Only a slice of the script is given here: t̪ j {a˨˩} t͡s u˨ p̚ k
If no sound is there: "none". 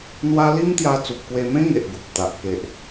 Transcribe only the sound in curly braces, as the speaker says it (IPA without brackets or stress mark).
a˧